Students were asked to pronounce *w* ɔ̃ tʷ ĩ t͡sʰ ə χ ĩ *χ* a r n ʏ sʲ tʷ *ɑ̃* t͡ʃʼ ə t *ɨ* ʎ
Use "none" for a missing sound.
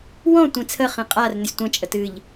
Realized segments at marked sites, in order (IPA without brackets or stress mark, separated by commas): w, qʼ, ə̃, ɨ